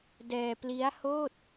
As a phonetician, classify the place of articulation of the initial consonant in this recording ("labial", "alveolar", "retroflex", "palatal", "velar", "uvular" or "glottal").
alveolar